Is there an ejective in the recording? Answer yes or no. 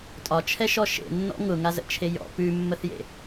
yes